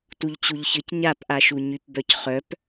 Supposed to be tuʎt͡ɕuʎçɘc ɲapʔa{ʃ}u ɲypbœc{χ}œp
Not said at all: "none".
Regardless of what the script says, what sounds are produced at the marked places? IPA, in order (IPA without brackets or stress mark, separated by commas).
ʃ, χ